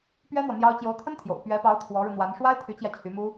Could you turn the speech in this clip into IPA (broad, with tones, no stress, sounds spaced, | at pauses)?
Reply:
p ɥ ɛ˥ n̪ w ɔ˨ n̪ j ɑ˥ ʊ̯ t͡ɕ j o˧˥ ʊ̯ t̪ʰ ə˥ n t̪ʰ j o̰˨˩ ʊ̯ p ɥ ɛ˧˥ p ɑ˧˥ ʊ̯ t̪ʰ w ɔ˧˥ ɻ u˧ n̪ w a˧˥ n ʂ w a˥ ɪ̯ t̪ʰ y˧˥ t͡ɕ j ä˧ t͡ɕʰ y˧˥ m u˥